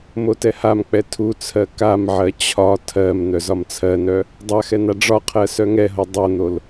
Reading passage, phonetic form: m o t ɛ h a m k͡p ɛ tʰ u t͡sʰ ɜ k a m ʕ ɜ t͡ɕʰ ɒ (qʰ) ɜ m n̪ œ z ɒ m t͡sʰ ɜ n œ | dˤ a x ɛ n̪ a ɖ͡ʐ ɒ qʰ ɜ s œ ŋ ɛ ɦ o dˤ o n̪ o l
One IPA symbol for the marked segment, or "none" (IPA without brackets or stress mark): tʰ